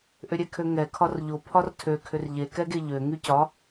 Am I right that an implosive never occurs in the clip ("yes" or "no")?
yes